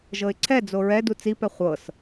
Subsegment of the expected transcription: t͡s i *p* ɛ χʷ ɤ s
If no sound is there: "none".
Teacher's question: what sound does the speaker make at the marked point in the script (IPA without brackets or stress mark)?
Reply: p